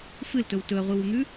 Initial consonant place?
labial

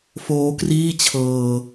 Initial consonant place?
labial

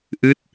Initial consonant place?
glottal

